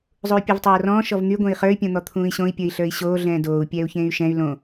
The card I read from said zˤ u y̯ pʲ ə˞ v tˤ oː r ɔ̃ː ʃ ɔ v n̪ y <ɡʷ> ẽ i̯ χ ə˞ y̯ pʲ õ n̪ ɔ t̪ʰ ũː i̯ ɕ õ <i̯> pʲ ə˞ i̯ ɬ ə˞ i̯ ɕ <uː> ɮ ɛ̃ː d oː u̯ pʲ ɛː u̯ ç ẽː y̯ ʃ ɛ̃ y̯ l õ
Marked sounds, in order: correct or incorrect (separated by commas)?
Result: correct, correct, incorrect